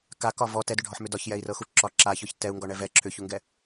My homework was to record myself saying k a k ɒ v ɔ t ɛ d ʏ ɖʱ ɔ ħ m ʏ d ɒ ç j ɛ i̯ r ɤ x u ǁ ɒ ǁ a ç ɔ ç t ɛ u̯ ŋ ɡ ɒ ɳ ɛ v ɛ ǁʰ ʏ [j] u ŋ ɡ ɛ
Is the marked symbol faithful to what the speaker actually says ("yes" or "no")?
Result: no